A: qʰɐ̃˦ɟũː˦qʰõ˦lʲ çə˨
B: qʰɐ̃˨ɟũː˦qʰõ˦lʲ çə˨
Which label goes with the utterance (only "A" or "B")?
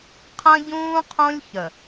A